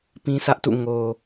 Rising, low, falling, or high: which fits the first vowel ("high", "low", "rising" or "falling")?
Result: high